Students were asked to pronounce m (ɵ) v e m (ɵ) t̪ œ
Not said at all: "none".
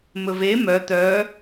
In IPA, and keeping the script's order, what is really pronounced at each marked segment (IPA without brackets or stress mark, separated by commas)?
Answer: ɵ, œ